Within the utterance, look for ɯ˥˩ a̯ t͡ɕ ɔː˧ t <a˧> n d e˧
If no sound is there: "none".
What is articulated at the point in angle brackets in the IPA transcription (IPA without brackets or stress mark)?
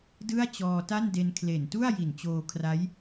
a˥˩